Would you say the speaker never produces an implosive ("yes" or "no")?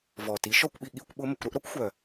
no